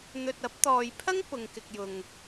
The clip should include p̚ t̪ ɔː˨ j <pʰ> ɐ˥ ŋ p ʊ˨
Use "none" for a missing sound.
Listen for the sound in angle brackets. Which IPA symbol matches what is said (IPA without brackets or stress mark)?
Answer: pʰ